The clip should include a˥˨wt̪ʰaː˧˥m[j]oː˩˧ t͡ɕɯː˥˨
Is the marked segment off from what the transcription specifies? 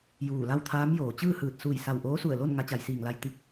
no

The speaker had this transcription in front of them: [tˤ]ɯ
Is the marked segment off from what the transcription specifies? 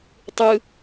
no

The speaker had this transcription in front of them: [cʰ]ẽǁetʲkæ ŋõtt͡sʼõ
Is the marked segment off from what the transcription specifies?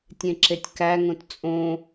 yes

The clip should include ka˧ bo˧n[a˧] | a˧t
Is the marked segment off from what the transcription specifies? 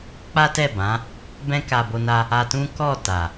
no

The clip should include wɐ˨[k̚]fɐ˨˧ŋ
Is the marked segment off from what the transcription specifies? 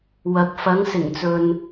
no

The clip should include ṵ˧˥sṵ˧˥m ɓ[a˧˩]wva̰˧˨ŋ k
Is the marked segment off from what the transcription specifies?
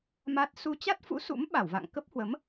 no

